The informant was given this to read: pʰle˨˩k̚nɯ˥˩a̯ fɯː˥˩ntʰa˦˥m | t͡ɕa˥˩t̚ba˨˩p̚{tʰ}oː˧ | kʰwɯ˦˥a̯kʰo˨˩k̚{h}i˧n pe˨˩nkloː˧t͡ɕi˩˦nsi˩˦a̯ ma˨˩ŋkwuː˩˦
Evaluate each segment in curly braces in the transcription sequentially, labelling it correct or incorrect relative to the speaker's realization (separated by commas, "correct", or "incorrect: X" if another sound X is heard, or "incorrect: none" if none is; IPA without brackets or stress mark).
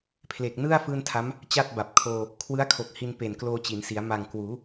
incorrect: kʰ, correct